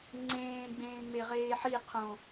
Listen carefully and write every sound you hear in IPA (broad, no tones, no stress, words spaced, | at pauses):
ŋ͡ǀẽː ɡ͡bẽːŋ͡meʁeːħi qʰõ